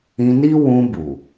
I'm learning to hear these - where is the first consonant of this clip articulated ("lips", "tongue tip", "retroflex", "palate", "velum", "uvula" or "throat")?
tongue tip